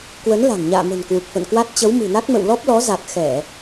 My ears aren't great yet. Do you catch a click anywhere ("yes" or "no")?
no